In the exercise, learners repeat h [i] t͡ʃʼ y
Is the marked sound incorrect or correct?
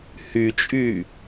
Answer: incorrect